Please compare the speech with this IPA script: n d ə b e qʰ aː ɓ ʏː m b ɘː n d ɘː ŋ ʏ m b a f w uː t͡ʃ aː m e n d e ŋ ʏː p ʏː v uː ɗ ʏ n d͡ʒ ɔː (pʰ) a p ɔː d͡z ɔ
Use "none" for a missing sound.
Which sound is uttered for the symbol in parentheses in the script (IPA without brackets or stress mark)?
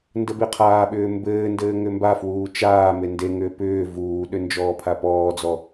pʰ